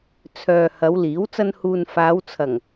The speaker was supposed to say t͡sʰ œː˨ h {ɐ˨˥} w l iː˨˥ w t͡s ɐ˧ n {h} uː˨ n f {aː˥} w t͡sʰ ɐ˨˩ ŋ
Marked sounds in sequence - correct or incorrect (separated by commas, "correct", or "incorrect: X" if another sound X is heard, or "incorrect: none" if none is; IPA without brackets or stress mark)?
incorrect: ɐ˨˧, correct, incorrect: aː˨˧